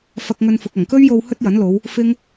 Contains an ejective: no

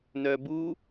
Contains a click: no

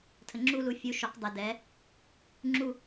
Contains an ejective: no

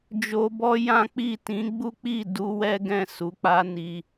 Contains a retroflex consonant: no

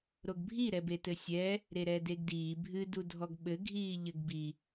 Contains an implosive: yes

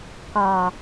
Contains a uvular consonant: no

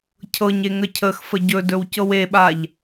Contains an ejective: no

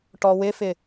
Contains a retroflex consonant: yes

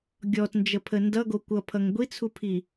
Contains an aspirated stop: yes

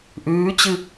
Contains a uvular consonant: no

